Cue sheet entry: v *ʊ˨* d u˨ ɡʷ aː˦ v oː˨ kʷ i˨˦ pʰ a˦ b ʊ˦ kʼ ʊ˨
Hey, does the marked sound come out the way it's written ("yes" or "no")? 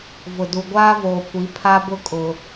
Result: yes